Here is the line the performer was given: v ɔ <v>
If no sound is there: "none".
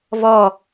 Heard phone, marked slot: none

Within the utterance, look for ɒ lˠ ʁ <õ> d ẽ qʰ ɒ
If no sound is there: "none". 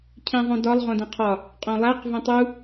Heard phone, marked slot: õ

